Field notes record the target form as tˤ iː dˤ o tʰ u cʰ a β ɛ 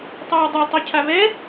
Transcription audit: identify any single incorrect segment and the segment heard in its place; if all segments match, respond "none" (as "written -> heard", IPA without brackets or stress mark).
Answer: tʰ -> tˤ